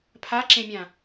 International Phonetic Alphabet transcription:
pʰ a ǁ ẽ mʲ ã

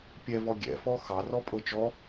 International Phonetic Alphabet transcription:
pʲ ɛ v ɔ ɡʲ ɛ̰ f ɔ x ɑ r ɔ pʼ ɤ t͡ʃ ɔ

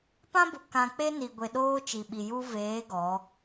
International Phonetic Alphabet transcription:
p ã˦ b ʊ˨ k ã˨ k͡p e˦ n i˨ ɡʷ e˨ ɗ oː˦ t͡ʃ i˨ ɓ i˨ j u˦ v eː˨˦ ɡ ɔ˨˦

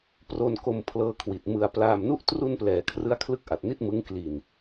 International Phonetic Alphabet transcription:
p r o˧ n k o˧ m pʰ l ɤː˧ kʰ w i˨˩ t̚ m ɯ˧ a̯ p l aː˧ m n u˥˩ ʔ t r u˧ n p l ɛː˩˦ kʰ r ɯ˦˥ a̯ kʰ l ɯ˦˥ k̚ ʔ a˨˩ t̚ n i˥˩ t̚ m ɯ˦˥ ŋ k l i˨˩ n

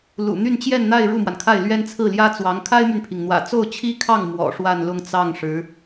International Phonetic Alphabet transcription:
l ṵ˨˩ n̪ y˥˧ n t͡ɕ j ɛ˥˧ n n̪ a˥˧ ɪ̯ ɻ u˥˩ m w a˩ n kʰ a˥˩ ɪ̯ l ɥ ɛ˥ n t͡sʰ ɹ̩˥˩ l j ä˥ t͡s w ɑ˧˥ ŋ kʰ a˥ ɪ̯ m y˨ n pʰ i˩ ŋ n̪ w ä̰˨˩ t͡s o˥˩ ʊ̯ t͡ɕʰ i˥ kʰ ɑ˥˩ ŋ m w ɔ̰˨˩ ʂ w a˥˧ n l ʊ˥˧ ŋ t͡s ɑ˥˩ ŋ ʂ ɻ̩˧˥

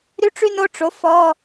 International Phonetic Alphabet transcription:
ɾ y˥ ʈ͡ʂ y˥ n o˧˥˧ ʈ͡ʂ o˩˥ f ɔ˧˥˧

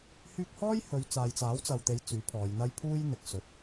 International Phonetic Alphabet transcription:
h yː˧ k̚ h ɔː˥ j h ɵ˨˧ ɥ t͡s aː˨ j t͡s aː˨˥ w t͡s ɐ˨ w t̪ e˨˧ j t͡s yː˨˥ pʰ ɔː˨˧ j n̪ ɐ˥ j pʰ uː˥ j n̪ ɪ˨ k̚ s ɵ˨ t̚

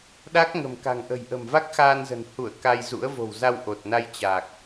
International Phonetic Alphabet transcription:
ɗ a˦˥ k̚ ŋ ə̤˨˩ m k a̤˨˩ ŋ ʔ ə̤˨˩ j ʔ ə̤˨˩ m v a˦˥ k̚ x aː˧ n z ə̤˨˩ n h u˧˩ ə̯ k a˧ j z ṵ˧˥ ə̯ v o̤˨˩ w z a˧ w ʔ o˨˩ t̚ n a˧ j t͡ɕ aː˨˩ k̚

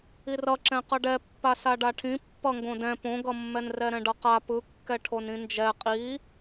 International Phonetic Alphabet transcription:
i r ʌ ǁ ɛ̃ q ʌ ɖ ɛ pː a s a ɖ a ʈʰ ĩ pː ʌ ŋ ɡ õ d ɛ̃ p õ ɡ ʌ mː ɛ n r ɛ ɾ ɛ̃ ɖ ʌ q a p ɯ kː ɛ ʈʰ o n ĩ n d͡ʒ ɛ qʼ i

